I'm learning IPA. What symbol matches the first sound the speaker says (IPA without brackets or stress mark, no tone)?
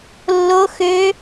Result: lː